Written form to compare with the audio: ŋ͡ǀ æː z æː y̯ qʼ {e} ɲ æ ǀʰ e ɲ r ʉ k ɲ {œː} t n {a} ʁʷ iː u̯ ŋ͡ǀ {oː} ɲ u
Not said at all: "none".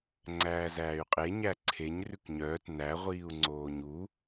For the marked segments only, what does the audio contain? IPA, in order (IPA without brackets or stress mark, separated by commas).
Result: e, œː, æ, oː